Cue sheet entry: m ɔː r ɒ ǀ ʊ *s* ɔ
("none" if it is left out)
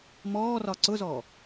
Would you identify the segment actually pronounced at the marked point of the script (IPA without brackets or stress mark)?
z